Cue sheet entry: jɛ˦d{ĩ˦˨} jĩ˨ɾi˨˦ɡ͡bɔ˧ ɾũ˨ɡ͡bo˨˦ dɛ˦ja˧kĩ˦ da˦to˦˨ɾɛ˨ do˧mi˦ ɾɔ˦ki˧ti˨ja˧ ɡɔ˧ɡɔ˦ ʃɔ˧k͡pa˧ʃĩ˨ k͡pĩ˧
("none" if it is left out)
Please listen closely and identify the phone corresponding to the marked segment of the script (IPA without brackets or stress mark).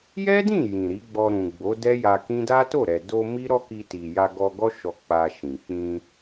ĩ˦˨